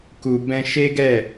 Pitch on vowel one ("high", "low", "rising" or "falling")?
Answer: low